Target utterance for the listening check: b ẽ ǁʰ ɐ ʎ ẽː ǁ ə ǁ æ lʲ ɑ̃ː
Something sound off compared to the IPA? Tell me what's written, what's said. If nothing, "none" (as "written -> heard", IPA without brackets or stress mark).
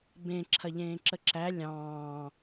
none